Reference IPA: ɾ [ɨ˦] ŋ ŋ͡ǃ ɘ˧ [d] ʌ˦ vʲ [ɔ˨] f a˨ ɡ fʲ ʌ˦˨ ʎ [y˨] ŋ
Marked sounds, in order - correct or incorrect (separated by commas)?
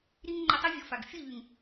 incorrect, incorrect, correct, correct